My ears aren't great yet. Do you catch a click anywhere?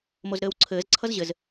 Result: yes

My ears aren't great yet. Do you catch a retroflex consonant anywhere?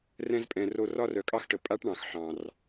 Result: yes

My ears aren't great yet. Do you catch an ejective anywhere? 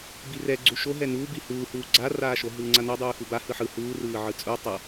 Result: yes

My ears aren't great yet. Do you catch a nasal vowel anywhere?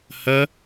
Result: no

